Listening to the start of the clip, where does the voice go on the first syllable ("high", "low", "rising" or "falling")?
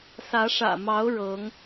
rising